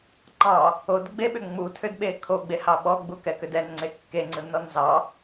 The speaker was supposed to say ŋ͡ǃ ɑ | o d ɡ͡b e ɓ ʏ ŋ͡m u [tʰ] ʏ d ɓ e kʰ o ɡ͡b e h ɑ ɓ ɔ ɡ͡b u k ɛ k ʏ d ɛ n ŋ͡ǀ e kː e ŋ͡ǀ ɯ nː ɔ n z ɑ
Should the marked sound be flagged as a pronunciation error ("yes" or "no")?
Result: no